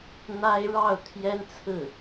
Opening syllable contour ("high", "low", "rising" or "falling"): high